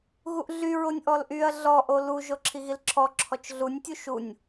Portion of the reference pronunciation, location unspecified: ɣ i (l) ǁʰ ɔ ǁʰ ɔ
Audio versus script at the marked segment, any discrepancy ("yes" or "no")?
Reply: no